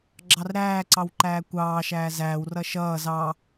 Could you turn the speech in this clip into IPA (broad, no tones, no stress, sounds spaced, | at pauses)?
ɡ͡ǁ ɑ r ɾ æː ǀ ɑ w ǃ æː kʷ ɑː ʃ æː z æː w r ʌ ʃ ʌː z ɑ